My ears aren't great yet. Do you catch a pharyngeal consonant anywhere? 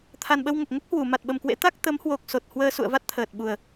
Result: no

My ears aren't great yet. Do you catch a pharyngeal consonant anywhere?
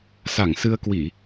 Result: no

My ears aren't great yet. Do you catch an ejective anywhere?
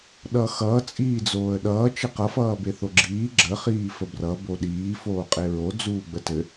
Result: yes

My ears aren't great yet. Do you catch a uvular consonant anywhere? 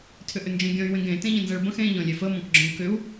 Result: no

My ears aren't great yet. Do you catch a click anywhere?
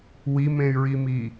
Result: no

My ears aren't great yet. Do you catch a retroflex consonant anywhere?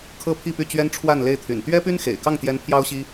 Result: yes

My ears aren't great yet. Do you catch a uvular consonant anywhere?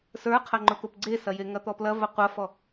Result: yes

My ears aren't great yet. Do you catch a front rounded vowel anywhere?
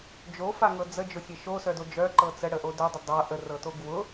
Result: yes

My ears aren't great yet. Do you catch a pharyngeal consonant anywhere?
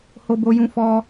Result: no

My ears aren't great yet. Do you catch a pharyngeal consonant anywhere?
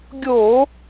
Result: no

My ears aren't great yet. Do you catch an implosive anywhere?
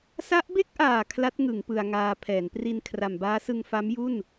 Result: no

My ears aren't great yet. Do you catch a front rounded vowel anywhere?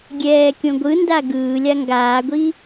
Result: no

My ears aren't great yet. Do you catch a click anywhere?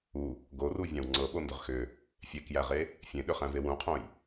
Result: yes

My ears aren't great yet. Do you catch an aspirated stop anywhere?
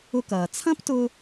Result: yes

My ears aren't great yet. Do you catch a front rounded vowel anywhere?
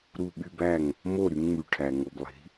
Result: yes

